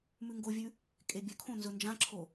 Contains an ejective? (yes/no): yes